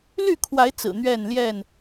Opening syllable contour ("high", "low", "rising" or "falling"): falling